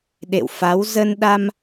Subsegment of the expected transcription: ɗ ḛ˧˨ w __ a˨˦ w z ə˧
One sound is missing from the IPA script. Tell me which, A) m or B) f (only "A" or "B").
B